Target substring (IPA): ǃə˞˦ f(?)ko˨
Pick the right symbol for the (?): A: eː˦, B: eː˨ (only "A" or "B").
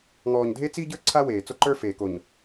B